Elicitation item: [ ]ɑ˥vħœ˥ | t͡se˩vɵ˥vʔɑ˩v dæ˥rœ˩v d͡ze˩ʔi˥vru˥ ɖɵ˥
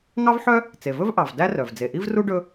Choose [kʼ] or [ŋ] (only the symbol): ŋ